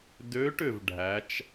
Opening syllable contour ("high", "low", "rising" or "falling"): rising